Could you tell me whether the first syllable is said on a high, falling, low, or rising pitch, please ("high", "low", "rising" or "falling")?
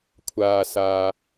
low